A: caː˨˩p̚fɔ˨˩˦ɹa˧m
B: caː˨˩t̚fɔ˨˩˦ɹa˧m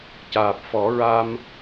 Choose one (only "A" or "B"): A